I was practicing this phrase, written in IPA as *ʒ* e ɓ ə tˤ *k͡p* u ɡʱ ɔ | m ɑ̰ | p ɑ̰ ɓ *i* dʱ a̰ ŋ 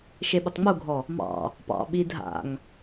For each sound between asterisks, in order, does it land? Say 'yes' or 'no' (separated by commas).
no, no, yes